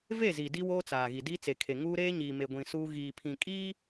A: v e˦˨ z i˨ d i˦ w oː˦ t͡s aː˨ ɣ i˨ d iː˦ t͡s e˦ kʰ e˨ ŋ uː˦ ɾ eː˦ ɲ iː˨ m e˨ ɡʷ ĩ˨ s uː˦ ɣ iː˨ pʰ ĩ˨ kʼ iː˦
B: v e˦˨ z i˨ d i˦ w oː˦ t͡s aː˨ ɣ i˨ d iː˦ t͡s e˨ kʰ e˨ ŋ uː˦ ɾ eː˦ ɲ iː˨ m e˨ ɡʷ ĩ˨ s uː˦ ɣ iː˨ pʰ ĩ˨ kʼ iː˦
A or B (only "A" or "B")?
B